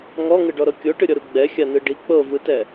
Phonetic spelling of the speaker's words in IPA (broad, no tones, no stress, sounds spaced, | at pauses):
ŋ ɔ ŋ ɯ ɖ ɔ ɾ ɤ kʲ o ʈ ɯ ɾʲ ɔ ɾ u ɡ͡b ɛ xʲ a n ɯ ɖ i k͡p ɤ v ɯ t ɛ